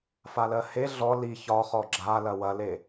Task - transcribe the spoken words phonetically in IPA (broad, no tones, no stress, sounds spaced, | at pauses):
f a l ɜ h e ɮ ɔ l i ç ɒ χ ɔ ɡ͡ǁ a l ɐ w ɐ l e